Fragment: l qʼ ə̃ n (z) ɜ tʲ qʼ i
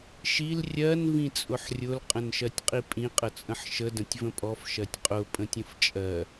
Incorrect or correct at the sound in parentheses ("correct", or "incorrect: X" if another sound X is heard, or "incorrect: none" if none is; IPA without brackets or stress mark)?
incorrect: ʃ